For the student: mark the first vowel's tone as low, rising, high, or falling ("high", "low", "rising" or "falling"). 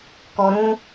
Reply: high